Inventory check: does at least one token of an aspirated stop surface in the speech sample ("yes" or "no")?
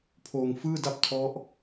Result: yes